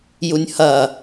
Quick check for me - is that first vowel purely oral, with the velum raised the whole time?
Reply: yes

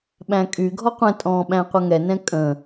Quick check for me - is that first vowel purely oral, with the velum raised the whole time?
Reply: no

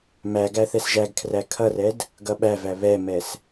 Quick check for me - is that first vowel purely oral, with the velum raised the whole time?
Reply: yes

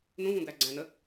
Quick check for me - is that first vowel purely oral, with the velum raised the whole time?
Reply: no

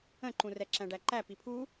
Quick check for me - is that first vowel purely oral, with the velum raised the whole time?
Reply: no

